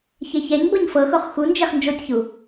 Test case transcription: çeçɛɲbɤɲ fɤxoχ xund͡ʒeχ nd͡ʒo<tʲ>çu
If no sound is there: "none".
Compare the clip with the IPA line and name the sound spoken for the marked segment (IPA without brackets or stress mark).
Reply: tʲ